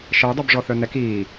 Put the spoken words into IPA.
ʃ ə j dˤ œ b ʐ ɔ θ œ n ɛ k iː

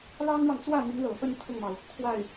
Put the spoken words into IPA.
l ɑ˥ ŋ ɻ ɑ˨ ŋ t͡s w ä˥˩ m y˧˥ n l ɤ˨˩ f ə˥˧ n t̪ʰ ʊ˥˩ ŋ m ɑ˩ ʊ̯ | kʰ w a˥˩ ɪ̯

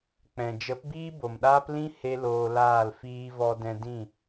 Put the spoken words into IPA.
k͡p ɛ̃˨ d͡ʒ ə˨˦ p b iː˦ b o˨ m ɗ aː˦ p l ĩ˧ h e˦ l oː˧ l aː˦˨ l f iː˧ v ɔ˧ d ɛ̃˧ d ĩ˦˨

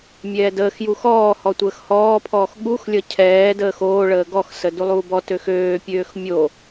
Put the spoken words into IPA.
mʲ ɛː d əː x j u x ɔː h ɔ tʷ əː x h ɔː pʰ ɔː x ɠ u x lʲ ʌ cʰ ɛː d əː x oː ɭ əː ɡ ɔ x s ə d u lˠ uː b ɔ t ø x øː pʲ øː x mʲ o

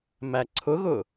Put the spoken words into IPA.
m æ ǀʰ ʊ ɣ ʊ

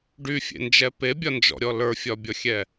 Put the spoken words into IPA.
ɖ y fʲ ḛ n d͡ʒ ɛ p e bʲ ɒ n d͡ʒ ɔ̰ ɾʲ ɔ l ə˞ fʲ ɒ bʲ ɔ xʲ ɛ

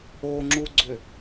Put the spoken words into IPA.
o ŋ͡ǁ u ɡ͡ǀ ʏ

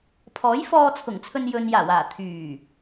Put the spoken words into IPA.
pʰ ɔː˨˥ j f ɔː˧ t͡sʰ ʊ˨˩ ŋ t͡sʰ ɵ˧ n j ɵ˨ n j aː˨˩ w aː˨˩ t̪ʰ yː˨˩

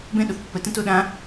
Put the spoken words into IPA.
b ɛ̃ ɗ o θ pː ə t ə̃ t o ɗ ã

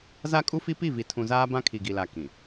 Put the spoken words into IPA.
z a˦ kʼ u˦ f i˦ p i˦˨ v i˨ tʰ ũ˨ z aː˦ b ã˦ kʰ i˨ ɡ i˨ l a˨ k ĩ˨

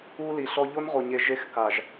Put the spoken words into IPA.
u˦ l i˨ ɬ ɔ˦ ʎ o˦ n ʁ o˨ ɲ e˨ ʒ e˦ x k a˨ ʒ

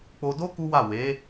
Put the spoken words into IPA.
k͡p o˧ d o˦ k u˦ w a˦˨ w e˨˦

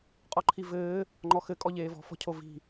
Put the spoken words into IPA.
qʼ ɔ ǃʰ i v ɘː | ŋ͡ǃ ɔ x ɘ kʼ ɔ ʎ eː v ɔ̤ f ɔ̤ cʰ o v i̤

